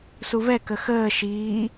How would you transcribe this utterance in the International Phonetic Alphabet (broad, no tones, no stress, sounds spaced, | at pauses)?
s u v ɛ k ə x əː ʃ iː